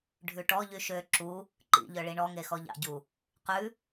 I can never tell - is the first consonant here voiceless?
no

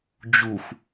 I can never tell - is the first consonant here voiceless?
no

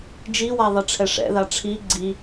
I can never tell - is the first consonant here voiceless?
no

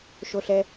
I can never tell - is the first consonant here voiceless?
yes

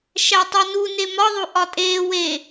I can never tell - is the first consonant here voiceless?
yes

